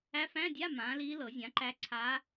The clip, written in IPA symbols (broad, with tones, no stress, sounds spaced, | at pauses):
æ˧˥ f æ̃˧˥˧ dʲ a˧˥˧ m ãː˩˥ l iː˧˥ l ɤ˨˩˦ zʲ ã˩˥ ǃ æ˧˥ ǀʰ aː˧˥